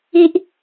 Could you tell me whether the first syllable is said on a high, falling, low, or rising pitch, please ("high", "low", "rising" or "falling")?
low